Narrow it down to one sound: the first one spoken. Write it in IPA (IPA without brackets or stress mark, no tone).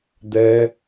d̪